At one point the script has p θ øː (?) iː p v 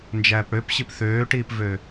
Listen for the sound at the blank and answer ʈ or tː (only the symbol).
ʈ